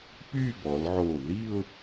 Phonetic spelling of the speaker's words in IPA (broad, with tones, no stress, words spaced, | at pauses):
py˥˧bɔ˩˧lʕo˧˩ ði˥˧ʊ̯